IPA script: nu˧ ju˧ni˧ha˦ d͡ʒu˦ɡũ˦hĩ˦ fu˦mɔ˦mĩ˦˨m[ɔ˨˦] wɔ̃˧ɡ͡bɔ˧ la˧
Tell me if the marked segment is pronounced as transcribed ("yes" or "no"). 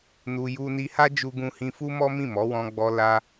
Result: yes